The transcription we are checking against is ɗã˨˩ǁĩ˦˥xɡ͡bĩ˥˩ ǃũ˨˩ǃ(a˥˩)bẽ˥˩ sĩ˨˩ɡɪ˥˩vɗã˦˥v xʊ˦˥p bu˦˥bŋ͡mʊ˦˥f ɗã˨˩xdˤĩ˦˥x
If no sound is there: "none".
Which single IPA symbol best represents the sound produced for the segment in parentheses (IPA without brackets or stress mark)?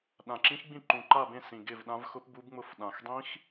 a˥˩